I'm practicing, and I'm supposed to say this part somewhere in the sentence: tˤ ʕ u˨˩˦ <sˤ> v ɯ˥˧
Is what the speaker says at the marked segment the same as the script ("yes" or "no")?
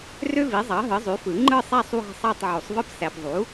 yes